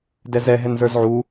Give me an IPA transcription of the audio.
d ɛ z ɛ ɦ ɛ n z ə˞ z ʕ u

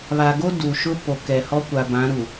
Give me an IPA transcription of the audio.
β a˨ ɡ o˦ d u˨ ʃ ʊ˦ p o˨ k ɛ˨ h ɔ˦ kʷ a˨ b ã˨˦ ɾ u˨

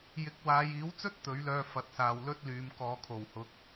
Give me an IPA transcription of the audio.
j ɪ˨˥ k̚ w aː˨˧ j iː˨˥ w t͡s ɵ˥ t̚ t̪ ɵ˨˥ ɥ l œː˧ f ɐ˨˥ t̚ s aː˨ w l ɵ˥ t̚ l yː˨˧ m k ɔː˨˧ kʰ o˨˩ w h ʊ˨˥ k̚

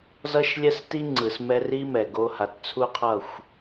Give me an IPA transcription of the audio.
z ʌ˦ ʃ lʲ ɛ˦ s t i˦ ŋ͡ǀ ɯ˨ s m ɛ˦ r i˦ m ɛ˨ ɡ o˦ h a˨ t t͡sʰ u˦ qʰ ʌ˦˨ xʷ

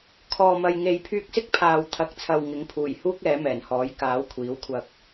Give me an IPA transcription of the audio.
kʰ ɔː˨ m ɐ˨ j ŋ e˨ j pʰ yː˧ k̚ s ɪ˥ k̚ pʰ aː˨ w t̪ʰ ɐ˨˥ k̚ t͡sʰ ɐ˨ w ŋ ɪ˨˥ ŋ pʰ uː˨˩ j h uː˥ k̚ ɛː˨˥ m ɛː˨˩ n h ɔː˨˥ j k aː˨˥ w kʷʰ iː˨˥ w kʷʰ ɐ˧ k̚

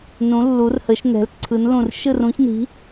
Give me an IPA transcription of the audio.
n ũ˧˥ lː u˧˥ r h ə˧˥ ʃ n ɛ̤˧˥ l ǀʰ ɯ˧˥ n l ũ˥˧ r ʃ ɯ˥˧ r ũ˧˥ ç n i̤˧˥

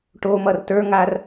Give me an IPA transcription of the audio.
ʈ o m ʌ r t ə˞ ŋ a r

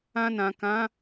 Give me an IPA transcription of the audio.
ã˧ n ã˨ k ã˨˦

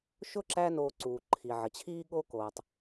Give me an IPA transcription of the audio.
ʃ ʊ˥ ǁ æ˦ n oː˨ ǀ uː˩ ǃʰ i˩ ʕ ə˩ t͡ɕʰ iː˦ ɠ o˦ k oː˩ tˤ

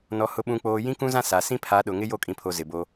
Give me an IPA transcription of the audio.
n ɔ˨ h ʊ˨ ɓ ũ˨ k͡p oː˨ j ĩ˦ k ũ˦ z ã˦ s a˨ s ĩ˦ pʰ a˨˦ ɗ ʊ˨ ŋ ɪ˦ j o˦˨ kʼ ĩ˨ pʰ o˨ z ɪ˨ b o˦

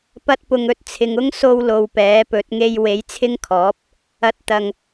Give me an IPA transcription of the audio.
p ɐ˥ t̚ p ʊ˧ ŋ ɵ˨ t̚ t͡sʰ ɪ˨ ŋ ʊ˥ ŋ s o˧ w l o˨ w p ɛː˨˥ p ɵ˨˥ t̚ ŋ e˥ j w e˨˥ j t͡sʰ ɪ˥ ŋ kʰ ɔː˨˥ p̚ | ɐ˧ t̚ t̪ ɐ˧ ŋ

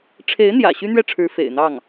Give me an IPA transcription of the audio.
ʈ͡ʂʰ e˧˥ ɪ̯ n̪ j ä̰˨˩ ɕ y˥ n̪ ɥ ɛ˥˩ ʈ͡ʂʰ ɻ̩˧˥ f ḛ˨˩ ɪ̯ n̪ ɑ˥˩ ŋ

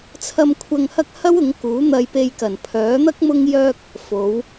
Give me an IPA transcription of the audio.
t͡sʰ ɐ˧ m kʷʰ ɐ˧ ŋ h ɐ˥ k̚ h ɐ˥ w ʊ˨˥ ŋ k uː˨˥ n̪ ɐ˧ j p e˧ j k ɐ˨˩ n pʰ œː˨˥ n̪ ɐ˥ k̚ m ʊ˥ ŋ j œː˧ k̚ | f o˨˧ w

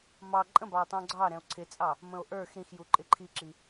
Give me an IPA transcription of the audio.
m ɑ ǃʼ ə̃ b ɑ o̯ tˤ ũ ɡ͡ǀ ɑ ɾ ɛ̃ o̯ ǀʰ ɪ t͡sʼ ɑ | m ə̃ o̯ ʔ ə˞ x ɾ ĩ x j u ǃʼ ɪ ǃʰ i ǁ i

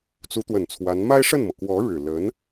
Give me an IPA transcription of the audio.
t͡s u˧˥ t̪ w ə˨˩ n t͡sʰ w a˧˥ n m a˥ ɪ̯ ʂ ə˥˩ n m ɤ˩ k w ɔ˧˥ ɻ ɻ̩˨˩ l ə˧˥ n

